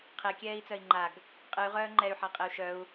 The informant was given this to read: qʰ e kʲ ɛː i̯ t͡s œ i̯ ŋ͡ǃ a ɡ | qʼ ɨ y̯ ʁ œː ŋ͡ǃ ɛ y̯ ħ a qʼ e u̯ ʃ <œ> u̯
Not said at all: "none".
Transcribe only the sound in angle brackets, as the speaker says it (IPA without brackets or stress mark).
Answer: œ